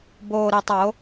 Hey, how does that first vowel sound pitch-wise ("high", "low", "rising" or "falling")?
low